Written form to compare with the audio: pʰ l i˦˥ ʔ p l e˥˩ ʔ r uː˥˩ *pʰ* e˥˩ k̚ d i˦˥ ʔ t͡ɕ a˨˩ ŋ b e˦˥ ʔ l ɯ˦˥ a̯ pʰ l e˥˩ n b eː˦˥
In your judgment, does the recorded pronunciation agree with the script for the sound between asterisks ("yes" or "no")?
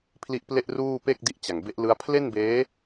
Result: no